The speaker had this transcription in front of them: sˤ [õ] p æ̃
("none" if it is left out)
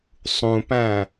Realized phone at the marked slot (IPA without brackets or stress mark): ũ